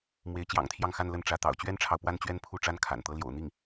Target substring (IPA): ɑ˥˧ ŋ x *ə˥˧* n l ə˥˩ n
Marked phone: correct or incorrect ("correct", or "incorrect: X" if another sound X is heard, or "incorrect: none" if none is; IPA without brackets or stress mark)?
incorrect: a˥˧